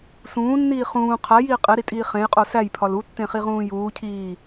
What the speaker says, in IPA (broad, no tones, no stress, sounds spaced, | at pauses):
s ũː nː iː χ ũː qʰ æ j iː qʼ e ɾ i tʼ iː χ ẽ j qʼ o s æ j pʰ ɒ l u tː ẽ χ i ʁ ũː j uː cʰ iː